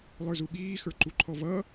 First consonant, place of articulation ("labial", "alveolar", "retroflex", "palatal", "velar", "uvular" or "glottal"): alveolar